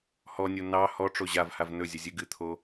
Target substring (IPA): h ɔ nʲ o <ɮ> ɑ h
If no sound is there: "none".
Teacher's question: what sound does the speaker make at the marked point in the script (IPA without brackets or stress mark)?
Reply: n